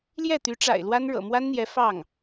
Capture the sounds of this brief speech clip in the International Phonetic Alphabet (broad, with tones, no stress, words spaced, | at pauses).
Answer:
ljɛ˥˩t̪y˧˥ʈ͡ʂa̰˨˩ɪ̯ lwa˥nɻɤ̰˨˩ mwa˥nn̪jɛ˧˥ fɑ˥˩ŋ